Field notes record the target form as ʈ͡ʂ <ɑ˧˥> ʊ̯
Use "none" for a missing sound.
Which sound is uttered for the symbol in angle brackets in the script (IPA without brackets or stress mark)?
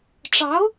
ɑ˧˥